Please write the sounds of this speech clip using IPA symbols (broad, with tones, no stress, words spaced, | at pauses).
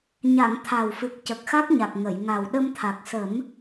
ɲa˨˩˨ŋ t̪ʰa˨˩wfɨ˨˩k̚ cə˨˩k̚xa˦˥k̚ɲa˨˩k̚ ŋə˨˩˨jŋa˨˩w ɗə˧mt̪ʰa˨˩k̚sə˨˩˦m